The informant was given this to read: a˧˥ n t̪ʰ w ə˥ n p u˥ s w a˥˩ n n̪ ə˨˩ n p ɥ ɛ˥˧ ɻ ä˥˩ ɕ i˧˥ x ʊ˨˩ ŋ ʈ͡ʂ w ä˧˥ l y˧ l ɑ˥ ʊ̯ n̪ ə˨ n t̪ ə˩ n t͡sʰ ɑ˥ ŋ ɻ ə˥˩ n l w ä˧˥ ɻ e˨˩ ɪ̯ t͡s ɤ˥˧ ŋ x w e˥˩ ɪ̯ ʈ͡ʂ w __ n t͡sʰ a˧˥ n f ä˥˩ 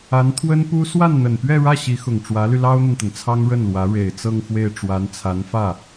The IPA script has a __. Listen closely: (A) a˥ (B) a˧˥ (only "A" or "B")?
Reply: B